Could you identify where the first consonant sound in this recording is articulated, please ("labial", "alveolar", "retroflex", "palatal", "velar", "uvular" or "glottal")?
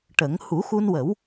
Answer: retroflex